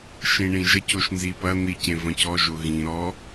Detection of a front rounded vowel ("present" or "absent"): absent